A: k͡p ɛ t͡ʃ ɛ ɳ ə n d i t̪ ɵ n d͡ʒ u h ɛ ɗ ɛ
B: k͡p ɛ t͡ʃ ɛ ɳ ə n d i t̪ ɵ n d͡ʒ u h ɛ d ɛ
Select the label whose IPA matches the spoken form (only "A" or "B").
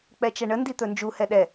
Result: A